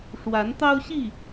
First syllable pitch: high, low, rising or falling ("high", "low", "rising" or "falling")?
rising